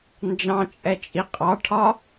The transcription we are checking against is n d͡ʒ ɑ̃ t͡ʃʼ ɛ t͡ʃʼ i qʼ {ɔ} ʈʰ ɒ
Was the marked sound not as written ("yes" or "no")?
yes